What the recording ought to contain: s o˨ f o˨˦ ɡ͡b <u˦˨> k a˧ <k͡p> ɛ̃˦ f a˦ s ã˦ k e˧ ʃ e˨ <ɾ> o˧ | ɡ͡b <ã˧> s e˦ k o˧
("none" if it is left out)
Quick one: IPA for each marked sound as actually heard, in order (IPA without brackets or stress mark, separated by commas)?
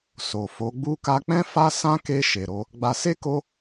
u˦, k͡p, ɾ, a˧